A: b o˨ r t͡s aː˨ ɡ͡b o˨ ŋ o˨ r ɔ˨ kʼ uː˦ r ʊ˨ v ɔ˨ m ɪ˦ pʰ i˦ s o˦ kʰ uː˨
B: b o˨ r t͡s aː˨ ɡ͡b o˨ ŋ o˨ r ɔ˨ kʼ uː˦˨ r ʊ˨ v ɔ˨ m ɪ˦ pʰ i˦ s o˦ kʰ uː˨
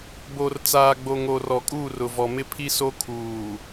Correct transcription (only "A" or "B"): B